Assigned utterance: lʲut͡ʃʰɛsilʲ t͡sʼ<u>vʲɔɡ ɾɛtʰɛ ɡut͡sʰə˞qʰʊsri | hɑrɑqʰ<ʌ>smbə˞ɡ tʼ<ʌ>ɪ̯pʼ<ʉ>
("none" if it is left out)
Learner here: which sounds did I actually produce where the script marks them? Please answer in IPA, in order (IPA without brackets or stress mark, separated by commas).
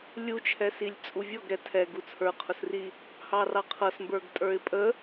u, ʌ, ə˞, ə